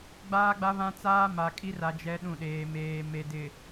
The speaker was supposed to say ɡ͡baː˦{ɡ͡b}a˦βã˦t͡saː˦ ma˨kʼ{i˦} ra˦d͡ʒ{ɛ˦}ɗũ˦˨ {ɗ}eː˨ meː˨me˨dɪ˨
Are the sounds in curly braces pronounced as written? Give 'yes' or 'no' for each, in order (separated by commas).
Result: yes, yes, yes, yes